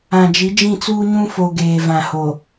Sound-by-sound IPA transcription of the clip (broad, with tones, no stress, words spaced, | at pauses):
ã˨d͡ʒi˨˦d͡ʒĩ˦˨t͡suː˦ ɲũ˦fo˨ ɡeː˨vã˨ho˨